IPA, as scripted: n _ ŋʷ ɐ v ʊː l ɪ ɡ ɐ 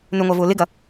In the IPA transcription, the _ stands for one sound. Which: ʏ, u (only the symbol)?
ʏ